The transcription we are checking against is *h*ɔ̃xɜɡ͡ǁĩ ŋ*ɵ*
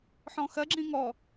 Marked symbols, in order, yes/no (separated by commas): no, no